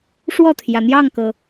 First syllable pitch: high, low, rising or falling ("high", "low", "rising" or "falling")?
falling